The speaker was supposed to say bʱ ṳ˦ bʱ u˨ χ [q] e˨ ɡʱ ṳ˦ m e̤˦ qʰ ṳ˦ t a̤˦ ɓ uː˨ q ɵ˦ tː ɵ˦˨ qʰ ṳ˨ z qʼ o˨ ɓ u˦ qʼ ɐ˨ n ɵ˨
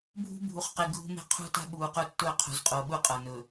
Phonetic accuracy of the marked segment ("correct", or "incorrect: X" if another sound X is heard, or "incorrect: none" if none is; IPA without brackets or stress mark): correct